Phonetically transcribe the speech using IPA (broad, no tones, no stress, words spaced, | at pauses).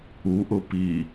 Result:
uʔʊ pi